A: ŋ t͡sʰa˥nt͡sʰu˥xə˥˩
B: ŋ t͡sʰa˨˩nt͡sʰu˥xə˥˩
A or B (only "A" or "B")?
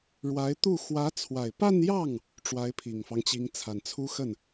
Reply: B